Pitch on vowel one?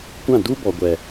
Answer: falling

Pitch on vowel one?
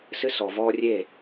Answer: high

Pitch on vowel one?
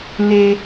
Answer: high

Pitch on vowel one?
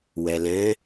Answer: low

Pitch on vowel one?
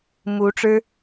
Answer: rising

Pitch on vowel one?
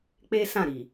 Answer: high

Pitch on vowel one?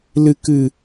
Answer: low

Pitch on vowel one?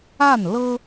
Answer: falling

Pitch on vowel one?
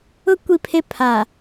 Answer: high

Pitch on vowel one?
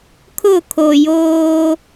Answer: falling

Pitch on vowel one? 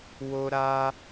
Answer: high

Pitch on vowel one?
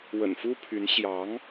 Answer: low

